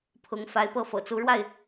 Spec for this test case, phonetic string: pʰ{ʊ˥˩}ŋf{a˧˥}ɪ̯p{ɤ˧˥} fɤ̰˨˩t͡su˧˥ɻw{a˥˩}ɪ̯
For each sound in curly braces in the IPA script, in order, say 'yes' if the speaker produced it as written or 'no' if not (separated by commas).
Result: no, yes, no, yes